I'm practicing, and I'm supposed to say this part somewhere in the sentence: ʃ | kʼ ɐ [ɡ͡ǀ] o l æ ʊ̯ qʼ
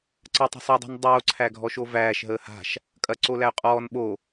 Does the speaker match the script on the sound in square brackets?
no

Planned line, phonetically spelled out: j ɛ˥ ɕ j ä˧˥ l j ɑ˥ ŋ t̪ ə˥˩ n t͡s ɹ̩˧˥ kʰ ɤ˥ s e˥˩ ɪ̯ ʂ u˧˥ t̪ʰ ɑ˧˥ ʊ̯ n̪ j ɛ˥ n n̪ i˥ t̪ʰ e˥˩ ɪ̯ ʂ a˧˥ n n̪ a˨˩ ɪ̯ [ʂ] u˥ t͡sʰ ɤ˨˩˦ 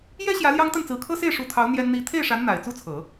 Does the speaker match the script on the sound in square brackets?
no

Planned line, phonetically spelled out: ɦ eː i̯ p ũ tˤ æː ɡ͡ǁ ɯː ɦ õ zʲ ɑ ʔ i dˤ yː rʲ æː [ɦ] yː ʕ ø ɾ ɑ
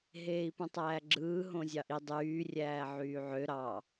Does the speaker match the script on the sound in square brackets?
no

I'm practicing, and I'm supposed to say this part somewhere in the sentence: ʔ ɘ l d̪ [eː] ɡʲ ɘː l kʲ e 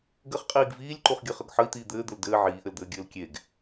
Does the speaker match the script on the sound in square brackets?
no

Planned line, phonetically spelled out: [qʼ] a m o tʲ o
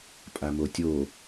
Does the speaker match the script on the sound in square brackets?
no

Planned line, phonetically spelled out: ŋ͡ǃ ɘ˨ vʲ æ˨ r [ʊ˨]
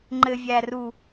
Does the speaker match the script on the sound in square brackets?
no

